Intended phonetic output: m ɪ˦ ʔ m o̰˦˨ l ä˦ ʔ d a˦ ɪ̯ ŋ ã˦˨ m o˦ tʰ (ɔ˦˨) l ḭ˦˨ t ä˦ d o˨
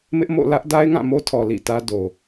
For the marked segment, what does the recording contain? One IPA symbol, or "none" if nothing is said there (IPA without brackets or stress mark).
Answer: ɔ˨